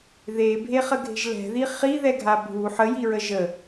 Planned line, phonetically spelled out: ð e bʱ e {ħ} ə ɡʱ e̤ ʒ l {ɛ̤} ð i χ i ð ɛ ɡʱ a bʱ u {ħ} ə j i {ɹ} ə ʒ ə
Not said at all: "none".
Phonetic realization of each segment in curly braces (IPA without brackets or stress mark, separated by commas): χ, ɛ̤, ħ, ɹ